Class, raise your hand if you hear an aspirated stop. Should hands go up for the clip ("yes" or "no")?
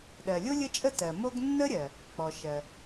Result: no